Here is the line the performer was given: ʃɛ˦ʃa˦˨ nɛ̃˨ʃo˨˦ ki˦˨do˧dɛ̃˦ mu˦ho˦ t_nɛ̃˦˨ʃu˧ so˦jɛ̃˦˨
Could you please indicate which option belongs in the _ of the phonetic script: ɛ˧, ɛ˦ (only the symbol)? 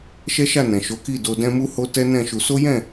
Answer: ɛ˦